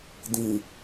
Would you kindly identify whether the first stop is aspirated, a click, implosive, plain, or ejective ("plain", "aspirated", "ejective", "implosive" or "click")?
plain